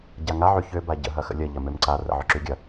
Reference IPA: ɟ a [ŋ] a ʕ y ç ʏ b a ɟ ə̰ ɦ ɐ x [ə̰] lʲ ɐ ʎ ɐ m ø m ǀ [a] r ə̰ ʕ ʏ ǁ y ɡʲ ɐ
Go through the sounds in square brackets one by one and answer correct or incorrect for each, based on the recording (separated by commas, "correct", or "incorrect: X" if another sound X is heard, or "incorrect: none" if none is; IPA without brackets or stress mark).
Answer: correct, correct, correct